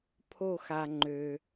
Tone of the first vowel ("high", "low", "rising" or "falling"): falling